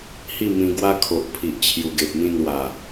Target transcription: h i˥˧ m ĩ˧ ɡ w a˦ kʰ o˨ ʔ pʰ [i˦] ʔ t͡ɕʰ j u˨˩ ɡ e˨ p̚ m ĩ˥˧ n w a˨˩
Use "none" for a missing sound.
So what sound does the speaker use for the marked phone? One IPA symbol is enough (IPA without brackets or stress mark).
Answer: i˨